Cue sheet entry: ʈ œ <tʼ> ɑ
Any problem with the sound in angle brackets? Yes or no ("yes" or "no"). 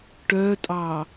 no